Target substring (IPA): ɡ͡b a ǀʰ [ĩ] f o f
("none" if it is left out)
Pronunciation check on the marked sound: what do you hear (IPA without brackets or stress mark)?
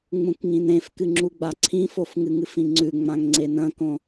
ĩ